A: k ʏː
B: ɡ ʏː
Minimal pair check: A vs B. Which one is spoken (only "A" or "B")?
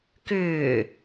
A